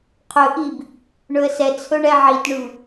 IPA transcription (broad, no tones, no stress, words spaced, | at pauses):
qʰɵʔib | ɳɵə̯sɛt͡sʰɵ ɳɛʕitɳʉ